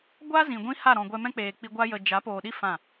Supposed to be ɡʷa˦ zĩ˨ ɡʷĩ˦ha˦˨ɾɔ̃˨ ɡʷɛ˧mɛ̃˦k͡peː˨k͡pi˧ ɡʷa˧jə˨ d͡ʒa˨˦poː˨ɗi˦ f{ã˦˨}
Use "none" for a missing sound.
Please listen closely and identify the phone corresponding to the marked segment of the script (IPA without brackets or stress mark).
ã˦˨